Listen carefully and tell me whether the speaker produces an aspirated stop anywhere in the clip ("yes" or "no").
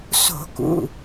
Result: no